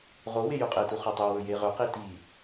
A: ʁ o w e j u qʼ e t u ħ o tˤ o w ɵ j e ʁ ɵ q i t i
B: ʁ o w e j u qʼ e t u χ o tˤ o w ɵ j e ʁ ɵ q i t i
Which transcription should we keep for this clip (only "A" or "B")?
B